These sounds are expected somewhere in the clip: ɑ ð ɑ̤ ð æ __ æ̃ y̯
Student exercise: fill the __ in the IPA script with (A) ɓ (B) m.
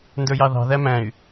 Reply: B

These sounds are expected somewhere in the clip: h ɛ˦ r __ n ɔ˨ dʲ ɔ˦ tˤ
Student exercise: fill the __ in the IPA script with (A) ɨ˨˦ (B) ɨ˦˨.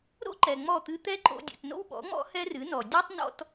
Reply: A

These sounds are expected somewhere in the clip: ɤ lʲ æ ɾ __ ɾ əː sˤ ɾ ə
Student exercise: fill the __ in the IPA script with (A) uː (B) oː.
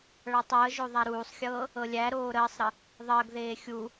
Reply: B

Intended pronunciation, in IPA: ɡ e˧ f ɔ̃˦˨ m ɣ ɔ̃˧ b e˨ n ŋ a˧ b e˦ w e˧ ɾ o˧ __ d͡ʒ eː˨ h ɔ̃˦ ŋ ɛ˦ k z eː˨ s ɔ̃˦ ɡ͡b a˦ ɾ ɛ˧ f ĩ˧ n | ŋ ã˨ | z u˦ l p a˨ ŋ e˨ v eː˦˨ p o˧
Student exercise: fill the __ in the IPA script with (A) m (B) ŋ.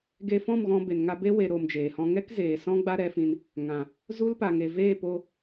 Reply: A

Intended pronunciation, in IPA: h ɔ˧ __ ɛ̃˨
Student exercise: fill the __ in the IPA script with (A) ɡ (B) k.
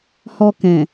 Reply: B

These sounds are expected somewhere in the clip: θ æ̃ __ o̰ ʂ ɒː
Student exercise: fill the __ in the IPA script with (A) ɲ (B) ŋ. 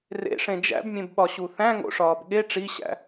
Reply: B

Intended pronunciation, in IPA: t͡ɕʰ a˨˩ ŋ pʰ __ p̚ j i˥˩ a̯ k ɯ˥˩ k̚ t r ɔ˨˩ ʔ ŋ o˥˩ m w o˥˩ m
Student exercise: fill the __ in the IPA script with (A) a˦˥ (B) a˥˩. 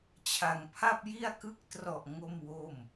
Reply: B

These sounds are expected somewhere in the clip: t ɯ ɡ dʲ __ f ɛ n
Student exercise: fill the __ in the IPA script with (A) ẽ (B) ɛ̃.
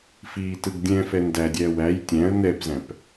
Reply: B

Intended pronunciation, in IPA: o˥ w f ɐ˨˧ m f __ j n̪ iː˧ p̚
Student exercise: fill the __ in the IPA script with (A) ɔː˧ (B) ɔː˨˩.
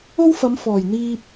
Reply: B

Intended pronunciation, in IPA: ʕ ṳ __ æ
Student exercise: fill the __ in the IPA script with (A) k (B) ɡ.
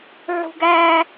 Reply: B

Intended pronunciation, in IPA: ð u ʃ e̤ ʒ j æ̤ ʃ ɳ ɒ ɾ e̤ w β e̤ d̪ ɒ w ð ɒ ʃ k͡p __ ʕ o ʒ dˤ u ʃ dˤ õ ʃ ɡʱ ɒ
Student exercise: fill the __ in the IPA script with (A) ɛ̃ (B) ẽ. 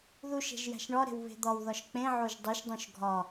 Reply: B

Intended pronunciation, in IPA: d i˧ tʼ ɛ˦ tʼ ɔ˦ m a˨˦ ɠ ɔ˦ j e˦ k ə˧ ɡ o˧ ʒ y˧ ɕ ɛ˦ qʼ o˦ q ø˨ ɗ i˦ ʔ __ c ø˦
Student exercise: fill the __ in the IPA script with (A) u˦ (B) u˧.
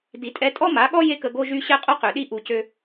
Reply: B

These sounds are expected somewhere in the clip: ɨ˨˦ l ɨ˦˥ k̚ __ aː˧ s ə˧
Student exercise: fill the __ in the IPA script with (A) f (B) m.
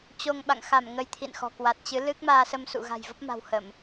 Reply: B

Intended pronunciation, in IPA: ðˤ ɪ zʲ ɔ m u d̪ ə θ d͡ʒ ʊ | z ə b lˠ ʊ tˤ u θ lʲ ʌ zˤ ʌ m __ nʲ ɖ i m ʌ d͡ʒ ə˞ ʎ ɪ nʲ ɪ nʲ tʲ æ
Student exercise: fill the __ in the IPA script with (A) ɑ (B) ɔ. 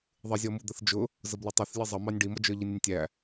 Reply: A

